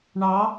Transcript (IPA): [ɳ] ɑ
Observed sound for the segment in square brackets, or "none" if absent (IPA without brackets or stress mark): ɳ